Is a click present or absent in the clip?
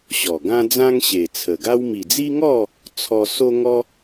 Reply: absent